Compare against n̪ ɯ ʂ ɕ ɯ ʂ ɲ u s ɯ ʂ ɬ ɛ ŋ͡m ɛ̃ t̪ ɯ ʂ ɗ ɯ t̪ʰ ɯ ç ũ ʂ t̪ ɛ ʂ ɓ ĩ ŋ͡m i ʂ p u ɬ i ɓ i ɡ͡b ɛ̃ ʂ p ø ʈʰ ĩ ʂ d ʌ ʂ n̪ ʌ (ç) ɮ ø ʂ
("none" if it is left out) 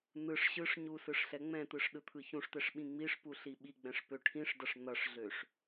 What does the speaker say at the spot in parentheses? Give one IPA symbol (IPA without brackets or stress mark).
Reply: ʂ